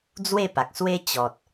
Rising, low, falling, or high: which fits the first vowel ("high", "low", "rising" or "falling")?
falling